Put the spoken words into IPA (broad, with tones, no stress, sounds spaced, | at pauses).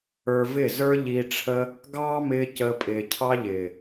ə˞˧ v ɪ˦˨ z ə˞˦ ʎ i˧ ʈ͡ʂʰ ə˦ | ɡ ɑː˦ m ɪː˧ c əː˧ pʼ ɪː˨ cʰ ɑ˦ ʎ ɪː˨